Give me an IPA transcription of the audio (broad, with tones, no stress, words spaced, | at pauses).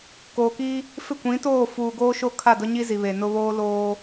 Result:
koː˨ki˦ | fɪ˦˨kʷĩ˨˦toː˦˨ fuː˨ɡoː˦ ʃo˦kʰa˦˨dʊ˦ɲi˦ zi˨βe˨nʊ˦ βoː˦loː˦